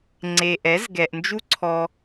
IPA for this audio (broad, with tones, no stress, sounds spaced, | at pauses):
ŋ͡ǀ e˨ ʔ ɛ˨˦ z ɡ ɛ˨ ʔ n d͡ʒ u˦ ǀʰ ɔ˧